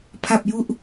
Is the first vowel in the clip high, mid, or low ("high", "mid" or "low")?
low